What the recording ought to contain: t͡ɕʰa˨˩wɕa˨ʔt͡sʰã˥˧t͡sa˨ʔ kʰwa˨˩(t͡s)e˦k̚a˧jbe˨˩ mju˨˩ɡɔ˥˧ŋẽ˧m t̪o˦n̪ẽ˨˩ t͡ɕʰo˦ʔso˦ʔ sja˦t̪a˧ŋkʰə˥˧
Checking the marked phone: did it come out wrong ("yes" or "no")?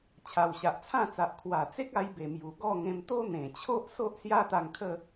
no